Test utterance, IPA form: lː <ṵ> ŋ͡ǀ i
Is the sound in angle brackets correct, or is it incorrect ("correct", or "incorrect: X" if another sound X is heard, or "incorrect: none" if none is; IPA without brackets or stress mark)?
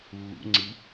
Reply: correct